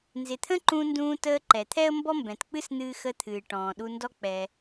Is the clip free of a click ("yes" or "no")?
no